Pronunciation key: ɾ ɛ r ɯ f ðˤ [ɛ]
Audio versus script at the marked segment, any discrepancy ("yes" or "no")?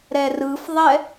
no